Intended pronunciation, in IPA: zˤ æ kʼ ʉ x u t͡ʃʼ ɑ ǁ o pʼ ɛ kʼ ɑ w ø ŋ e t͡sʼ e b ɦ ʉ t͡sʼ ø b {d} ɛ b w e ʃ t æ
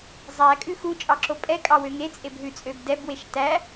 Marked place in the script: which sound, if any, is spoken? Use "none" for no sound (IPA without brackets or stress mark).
d